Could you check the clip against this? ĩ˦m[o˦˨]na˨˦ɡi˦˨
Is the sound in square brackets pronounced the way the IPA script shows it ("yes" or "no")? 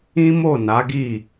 yes